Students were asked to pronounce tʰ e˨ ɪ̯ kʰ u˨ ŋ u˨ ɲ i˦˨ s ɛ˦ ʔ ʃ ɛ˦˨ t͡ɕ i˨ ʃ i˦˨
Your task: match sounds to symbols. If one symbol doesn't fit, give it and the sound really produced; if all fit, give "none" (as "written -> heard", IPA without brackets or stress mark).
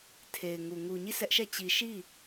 kʰ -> ŋ